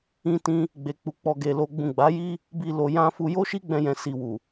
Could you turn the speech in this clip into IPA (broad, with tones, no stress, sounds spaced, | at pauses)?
ĩ˧ t ĩ˧ | ɡ͡b e˨ k͡p u˨ k͡p ɔ˨ ɡ e˨ l o˧ ɡ͡b ũ˨ ɡ͡b a˨˦ j i˦ | b i˧ l o˨ j ã˧ f u˧ j o˦ ʃ i˦ ɡ͡b ɛ̃˧ j ɛ̃˨ s i˨ w u˨